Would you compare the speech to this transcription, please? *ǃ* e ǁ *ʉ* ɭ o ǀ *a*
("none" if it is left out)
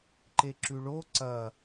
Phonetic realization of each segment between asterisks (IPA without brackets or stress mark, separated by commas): ǃ, ʉ, ɐ